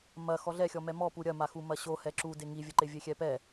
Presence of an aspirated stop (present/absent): absent